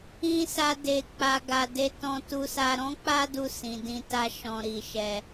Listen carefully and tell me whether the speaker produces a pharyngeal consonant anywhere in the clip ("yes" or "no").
no